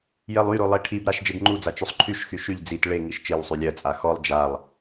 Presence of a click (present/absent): present